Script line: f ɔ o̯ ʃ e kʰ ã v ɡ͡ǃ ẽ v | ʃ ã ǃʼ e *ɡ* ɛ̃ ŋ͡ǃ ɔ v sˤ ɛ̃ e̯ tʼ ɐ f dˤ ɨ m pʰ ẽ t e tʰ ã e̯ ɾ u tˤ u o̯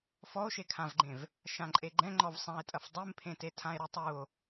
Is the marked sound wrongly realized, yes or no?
yes